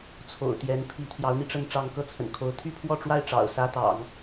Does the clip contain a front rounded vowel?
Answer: yes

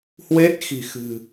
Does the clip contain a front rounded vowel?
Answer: no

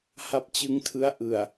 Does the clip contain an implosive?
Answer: no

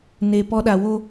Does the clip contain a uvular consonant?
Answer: no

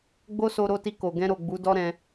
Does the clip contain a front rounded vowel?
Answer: no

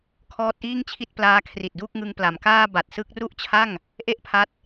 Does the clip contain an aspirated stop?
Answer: yes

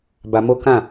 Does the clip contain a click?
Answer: no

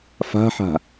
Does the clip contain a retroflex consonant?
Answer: no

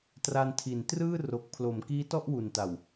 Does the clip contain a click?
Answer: no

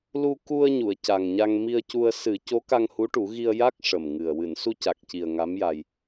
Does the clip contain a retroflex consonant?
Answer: yes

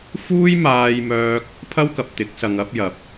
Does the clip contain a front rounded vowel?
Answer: yes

